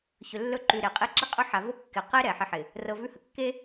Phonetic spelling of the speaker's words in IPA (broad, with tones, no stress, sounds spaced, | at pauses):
ç ɵ˨ lː ɵ˦ ǃ ʉ˨ ɾ e˨ qʼ i˦ ǁ ɪ˦ qʼ ɵ˦ ħ a˨ v o˦ kː ɪ˨ q e˦ ɾ ɛ˨ ħ ɪ˦ ħ ɪ˨ | r ɤ˨ v ʉ˦˨ h ə˨ kː e˦